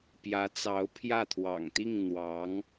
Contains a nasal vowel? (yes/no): no